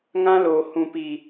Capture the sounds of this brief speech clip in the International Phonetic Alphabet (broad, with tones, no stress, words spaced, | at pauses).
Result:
ŋã˦loː˨ hũ˨pi˨